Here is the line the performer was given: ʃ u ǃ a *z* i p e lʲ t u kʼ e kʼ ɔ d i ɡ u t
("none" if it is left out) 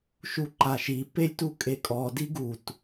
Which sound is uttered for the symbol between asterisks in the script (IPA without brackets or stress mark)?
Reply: ʃ